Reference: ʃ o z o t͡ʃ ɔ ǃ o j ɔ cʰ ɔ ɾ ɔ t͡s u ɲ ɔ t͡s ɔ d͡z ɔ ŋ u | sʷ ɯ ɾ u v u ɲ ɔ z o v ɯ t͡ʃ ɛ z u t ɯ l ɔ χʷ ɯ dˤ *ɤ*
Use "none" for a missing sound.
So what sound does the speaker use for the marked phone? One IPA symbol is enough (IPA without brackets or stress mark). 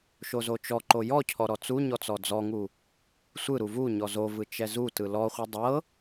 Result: ɤ